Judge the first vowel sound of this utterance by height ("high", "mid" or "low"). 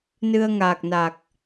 high